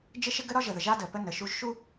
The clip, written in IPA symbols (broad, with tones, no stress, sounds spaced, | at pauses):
d͡ʒ ɪ˦ ʃ ɪ˦ ɡ ə˦ ɾ ɒ˦ ʒ ə˨ ð ə˨ ʒ a˦ d ə˨ p ə˦ n ə˨ ʃ u˦ ʒ ʃ u˦